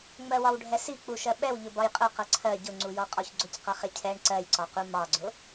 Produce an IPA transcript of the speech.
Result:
ŋ͡m ɜ w ɒ w ɖʱ ɛ s i k͡p u ʃ ɜ ɓ ɛ w ʎ ʊ b ɒ j qʼ ʊ q ʌ ǀʰ ɜ ɟ ʊ ŋ͡ǀ u j ɔ qʼ ɔ ç ɡ͡ǀ ʊ c q ʌ χ ɪ cʰ ɛ ɳ ǀ ɜ j ǀ ɒ q u m ɑ ɡ͡ǀ ʊ

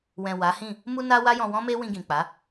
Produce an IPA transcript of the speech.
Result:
w ɛ̃˨ w a˨˦ h ĩ˦˨ | m u˧ n a˧ w a˦ j ɔ̃˧ w ɔ̃˦ m e˦ w ĩ˧ ɡ ĩ˨ k͡p a˨˦

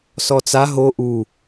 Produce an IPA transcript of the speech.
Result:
s ɔ t͡s a ɦ o ʔ u

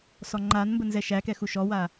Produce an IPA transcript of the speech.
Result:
s ɔ ŋ͡ǃ a n m b ə n z ɛ ʃ æ k ɛ x u ʃ ɔ w a

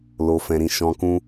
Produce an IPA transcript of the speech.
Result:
l o˧ f ɛ̃˧ ɾ ĩ˧ ʃ ɔ̃˧ k ũ˦

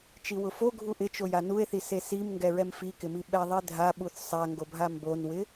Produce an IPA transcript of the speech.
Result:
t͡ʃ i w ʊ f o ɡʱ u ʔ ɪ t͡ʃ o j a n u e̯ θ i s e s i m ŋ ɡ ɛ ɹ ɛ m f i k ɪ m i ɓ ɛ ðˤ i dʱ a ɓ u θ sˤ a ŋ ɡ o bʱ a m b o n w ɪ

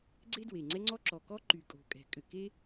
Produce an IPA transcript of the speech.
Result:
ɡ͡ǀ e˥ d w e˩ ŋ͡ǀ ɛ˥ ŋ͡ǀ ɔ˥ ǁ ɔ˩ k ɔ˥ ǃ y˩ kʼ o̤˩ kʼ ɛ̤˩ kʼ ʏ˩ k e˥

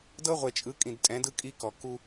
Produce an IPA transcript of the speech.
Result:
d ɤ˦ ʁʷ e˨ t͡ʃʼ ɯ˨˦ kʼ ĩ˨ d tʼ ɛ̃˨˦ d ɯ˦ kʼ i˦ k ɔ˨ k u˦

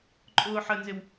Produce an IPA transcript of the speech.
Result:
ǃʼ ʊː ħ ə n z ɪ w

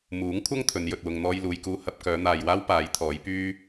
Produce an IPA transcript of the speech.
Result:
m uː˨˥ ŋ kʷʰ ɐ˥ ŋ t̪ʰ ɵ˨˧ n j ɵ˨ t̚ w ʊ˨ ŋ n̪ ɔː˧ j l uː˨ j k uː˧ h ɐ˧ p̚ k œː˨˧ n̪ aː˨ j w aː˥ w p aː˨˥ j t̪ʰ ɔː˨˥ j p yː˥

